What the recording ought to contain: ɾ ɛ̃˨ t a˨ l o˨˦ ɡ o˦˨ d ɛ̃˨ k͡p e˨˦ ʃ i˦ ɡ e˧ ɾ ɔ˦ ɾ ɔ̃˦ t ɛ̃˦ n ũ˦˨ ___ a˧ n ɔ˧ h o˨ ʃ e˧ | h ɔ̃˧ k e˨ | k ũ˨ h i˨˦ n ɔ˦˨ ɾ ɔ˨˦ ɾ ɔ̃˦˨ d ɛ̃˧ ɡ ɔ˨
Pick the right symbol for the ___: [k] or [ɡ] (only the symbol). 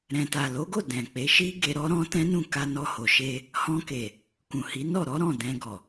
k